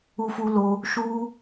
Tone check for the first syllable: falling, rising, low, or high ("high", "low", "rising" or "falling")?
high